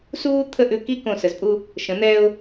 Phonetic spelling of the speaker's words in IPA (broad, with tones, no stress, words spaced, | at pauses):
suː˥ t̪ʰə˥˧ʔʉ˧ki˥ kõ˧˩sə˩˧zpʼu˥˧ | ʃə̃˩˧n̪ɛː˧ʊ̯